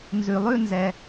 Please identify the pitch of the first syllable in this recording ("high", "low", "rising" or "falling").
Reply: low